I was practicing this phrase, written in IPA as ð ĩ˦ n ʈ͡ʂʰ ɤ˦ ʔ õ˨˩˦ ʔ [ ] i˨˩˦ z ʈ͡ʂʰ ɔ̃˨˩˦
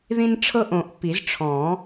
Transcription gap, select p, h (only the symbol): p